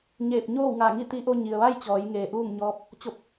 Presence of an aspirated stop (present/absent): absent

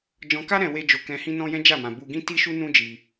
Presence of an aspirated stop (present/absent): absent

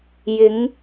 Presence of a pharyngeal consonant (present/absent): absent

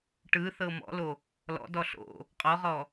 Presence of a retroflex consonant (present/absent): present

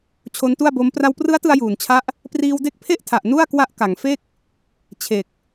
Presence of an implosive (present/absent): absent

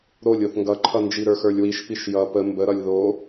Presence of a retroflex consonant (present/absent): absent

